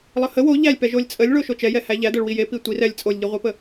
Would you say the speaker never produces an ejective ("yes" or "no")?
no